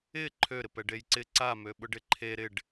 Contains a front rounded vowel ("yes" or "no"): yes